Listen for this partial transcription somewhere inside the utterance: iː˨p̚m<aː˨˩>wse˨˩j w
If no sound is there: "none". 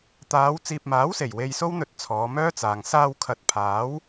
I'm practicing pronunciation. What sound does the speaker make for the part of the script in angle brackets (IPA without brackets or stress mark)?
aː˨˥